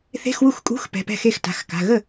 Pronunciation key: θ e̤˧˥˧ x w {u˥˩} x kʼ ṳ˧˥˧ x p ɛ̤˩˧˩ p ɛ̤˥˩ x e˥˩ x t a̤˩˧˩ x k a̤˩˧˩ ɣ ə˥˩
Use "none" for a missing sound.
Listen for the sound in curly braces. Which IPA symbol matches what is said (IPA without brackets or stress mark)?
u˥˩